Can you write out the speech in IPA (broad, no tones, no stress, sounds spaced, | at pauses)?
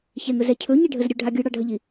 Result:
ç ɛ ŋ ɵ z ɛ cʰ ɵ ɲ i ɖʱ ə z ɾʲ ɵ ɖʱ a ɡʲ ɯ ɽ ɑ ɖʱ ə ʎ i